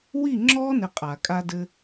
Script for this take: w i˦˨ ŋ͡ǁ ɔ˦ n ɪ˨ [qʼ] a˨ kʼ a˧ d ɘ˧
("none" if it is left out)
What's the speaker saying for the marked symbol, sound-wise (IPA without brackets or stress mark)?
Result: qʼ